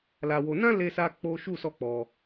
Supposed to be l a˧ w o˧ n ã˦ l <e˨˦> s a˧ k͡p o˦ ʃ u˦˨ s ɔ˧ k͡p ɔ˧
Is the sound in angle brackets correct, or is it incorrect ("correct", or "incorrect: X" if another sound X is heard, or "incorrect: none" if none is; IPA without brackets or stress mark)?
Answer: incorrect: e˧